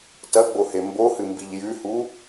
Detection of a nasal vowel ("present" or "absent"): absent